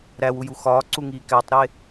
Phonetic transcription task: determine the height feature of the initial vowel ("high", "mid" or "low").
low